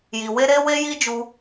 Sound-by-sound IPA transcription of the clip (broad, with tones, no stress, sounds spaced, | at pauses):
j i˨ w e˧ ɾ e˦ w e˦ j i˦ d͡ʒ u˧